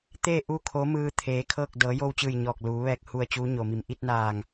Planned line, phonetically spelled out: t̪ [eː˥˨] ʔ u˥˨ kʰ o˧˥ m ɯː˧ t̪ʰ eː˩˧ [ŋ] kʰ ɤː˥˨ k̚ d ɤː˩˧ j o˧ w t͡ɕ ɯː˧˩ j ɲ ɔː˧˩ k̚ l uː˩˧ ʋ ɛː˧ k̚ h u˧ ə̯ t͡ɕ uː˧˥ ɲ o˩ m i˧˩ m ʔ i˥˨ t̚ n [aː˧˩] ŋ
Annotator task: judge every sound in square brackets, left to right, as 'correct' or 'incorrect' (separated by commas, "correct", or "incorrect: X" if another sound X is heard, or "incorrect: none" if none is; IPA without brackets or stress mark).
correct, incorrect: none, correct